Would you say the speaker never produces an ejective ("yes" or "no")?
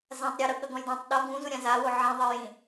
yes